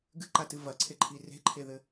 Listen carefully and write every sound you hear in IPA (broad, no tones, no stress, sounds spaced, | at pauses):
ɡ ɨ ǃ a t ɨ v ɐ ǀʰ e ǃʰ i r e̤ ǃʰ e ð ɘ